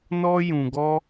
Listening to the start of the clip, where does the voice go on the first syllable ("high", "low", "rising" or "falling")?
high